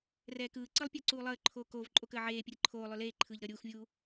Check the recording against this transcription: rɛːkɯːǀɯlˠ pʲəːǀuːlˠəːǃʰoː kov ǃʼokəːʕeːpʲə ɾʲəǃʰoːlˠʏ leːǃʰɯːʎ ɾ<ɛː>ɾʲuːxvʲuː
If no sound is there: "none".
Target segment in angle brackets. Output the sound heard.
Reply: əː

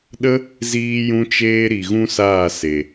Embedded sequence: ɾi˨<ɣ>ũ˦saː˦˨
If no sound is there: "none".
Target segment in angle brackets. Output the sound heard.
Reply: ɣ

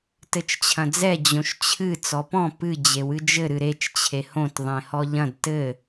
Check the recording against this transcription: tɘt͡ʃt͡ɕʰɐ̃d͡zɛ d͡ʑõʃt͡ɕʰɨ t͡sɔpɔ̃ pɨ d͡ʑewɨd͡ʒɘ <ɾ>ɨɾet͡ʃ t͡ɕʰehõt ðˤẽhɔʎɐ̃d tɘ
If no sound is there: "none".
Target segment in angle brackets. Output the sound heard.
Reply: ɾ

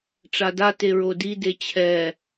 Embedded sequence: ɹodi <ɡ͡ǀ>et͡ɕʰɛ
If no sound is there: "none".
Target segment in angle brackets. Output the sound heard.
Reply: d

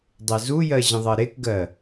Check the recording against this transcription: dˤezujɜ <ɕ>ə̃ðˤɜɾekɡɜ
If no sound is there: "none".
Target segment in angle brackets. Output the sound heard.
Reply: ʑ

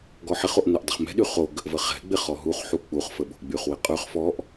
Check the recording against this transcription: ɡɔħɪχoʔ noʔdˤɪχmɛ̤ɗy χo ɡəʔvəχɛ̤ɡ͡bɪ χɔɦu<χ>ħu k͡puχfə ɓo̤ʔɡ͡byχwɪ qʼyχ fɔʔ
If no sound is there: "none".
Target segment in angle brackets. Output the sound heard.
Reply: χ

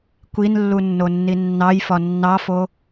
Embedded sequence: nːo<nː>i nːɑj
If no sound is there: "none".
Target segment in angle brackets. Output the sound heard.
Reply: nː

